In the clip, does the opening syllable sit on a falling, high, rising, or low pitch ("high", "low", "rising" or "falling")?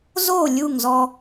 falling